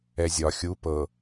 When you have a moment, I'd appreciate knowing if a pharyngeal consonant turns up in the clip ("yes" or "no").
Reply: no